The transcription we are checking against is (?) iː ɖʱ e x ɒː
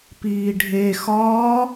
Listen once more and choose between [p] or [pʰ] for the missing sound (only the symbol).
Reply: p